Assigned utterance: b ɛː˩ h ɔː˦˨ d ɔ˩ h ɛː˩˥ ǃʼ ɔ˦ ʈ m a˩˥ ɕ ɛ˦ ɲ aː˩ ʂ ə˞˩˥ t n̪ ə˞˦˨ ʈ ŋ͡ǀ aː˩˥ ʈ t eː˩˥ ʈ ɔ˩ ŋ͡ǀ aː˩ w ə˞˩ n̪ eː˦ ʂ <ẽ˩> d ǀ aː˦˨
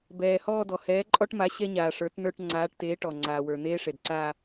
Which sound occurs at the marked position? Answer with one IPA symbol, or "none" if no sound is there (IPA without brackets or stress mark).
e˩